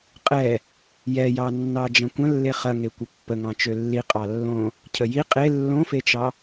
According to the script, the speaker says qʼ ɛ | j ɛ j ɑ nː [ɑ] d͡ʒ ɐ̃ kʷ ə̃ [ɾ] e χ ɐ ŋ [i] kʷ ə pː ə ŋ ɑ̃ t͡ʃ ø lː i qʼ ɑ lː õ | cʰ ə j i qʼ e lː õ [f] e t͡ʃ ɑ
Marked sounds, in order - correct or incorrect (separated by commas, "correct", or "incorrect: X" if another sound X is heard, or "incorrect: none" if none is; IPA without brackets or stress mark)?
correct, incorrect: lː, incorrect: e, correct